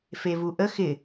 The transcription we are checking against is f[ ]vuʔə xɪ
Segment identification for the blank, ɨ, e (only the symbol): e